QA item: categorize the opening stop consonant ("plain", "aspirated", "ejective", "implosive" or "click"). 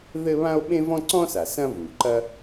implosive